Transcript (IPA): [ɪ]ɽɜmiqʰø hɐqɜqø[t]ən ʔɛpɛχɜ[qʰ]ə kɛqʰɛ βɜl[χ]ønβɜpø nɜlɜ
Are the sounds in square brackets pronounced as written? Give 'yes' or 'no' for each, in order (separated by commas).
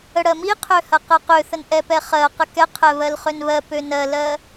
no, no, no, yes